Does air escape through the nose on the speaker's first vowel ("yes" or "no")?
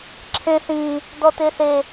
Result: yes